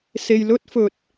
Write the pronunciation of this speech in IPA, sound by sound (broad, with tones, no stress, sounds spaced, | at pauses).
s e˧ j l ɵ˥ t̚ f ɵ˧ t̚